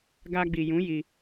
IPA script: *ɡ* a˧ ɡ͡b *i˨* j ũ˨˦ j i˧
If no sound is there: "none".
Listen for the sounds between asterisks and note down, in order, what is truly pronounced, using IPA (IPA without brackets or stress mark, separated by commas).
ɡ, i˨